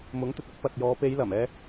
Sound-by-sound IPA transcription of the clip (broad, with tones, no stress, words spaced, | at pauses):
mʊ˨˥ŋt̪ɵ˨t̚ʊ˨˥k̚ pɐ˨t̚jɔː˨˧ pe˨˧jlɐ˨˩m ɛː˧